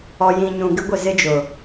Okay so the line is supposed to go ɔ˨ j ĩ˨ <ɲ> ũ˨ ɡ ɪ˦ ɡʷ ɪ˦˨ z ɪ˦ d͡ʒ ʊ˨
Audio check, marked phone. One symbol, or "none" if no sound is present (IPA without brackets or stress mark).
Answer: ɲ